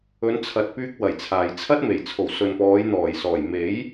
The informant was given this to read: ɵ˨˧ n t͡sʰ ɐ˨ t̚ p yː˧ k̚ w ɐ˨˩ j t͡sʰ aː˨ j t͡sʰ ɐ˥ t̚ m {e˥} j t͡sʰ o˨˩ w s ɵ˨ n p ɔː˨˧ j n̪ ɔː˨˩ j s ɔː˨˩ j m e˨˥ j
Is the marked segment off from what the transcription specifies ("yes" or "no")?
yes